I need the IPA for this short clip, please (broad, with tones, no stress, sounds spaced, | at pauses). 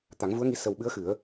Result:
t̪ a˨˩˦ ŋ v u˧˥ ə̯ ŋ i˧˥ s ə˨˩ w ɓ ɨ˧˥ ə̯ x ɨ˨˩˦ ə̯